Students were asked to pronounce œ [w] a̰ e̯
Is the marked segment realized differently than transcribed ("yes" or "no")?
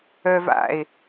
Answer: yes